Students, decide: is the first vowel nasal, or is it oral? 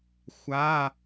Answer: oral